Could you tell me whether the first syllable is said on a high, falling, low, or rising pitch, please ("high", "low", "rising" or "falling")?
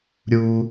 high